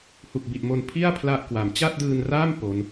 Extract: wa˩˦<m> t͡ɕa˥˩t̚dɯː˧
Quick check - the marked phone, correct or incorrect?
correct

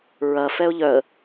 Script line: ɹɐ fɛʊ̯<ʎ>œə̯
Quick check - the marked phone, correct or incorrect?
correct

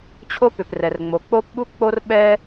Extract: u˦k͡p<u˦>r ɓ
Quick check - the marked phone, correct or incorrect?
incorrect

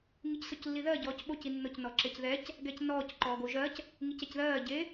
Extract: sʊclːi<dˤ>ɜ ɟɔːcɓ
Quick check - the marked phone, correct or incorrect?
incorrect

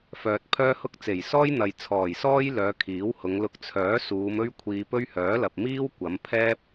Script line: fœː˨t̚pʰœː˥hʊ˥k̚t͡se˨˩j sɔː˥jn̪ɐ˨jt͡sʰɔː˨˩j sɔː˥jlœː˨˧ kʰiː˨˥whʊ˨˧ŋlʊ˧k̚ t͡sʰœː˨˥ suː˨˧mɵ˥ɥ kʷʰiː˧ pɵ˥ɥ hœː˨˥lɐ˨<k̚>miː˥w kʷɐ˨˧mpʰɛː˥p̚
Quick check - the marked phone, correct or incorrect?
incorrect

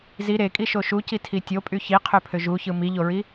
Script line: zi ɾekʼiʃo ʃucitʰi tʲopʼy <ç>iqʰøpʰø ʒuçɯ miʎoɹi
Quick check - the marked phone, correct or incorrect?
correct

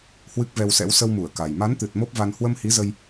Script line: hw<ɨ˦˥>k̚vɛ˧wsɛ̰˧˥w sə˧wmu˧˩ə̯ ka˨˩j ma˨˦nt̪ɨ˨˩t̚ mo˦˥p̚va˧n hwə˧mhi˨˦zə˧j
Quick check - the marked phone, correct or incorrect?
correct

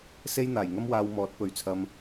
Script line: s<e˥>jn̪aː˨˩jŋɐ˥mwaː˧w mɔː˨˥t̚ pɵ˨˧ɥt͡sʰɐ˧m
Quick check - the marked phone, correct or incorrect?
correct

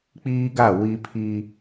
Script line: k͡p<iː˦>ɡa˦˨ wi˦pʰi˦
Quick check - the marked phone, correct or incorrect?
correct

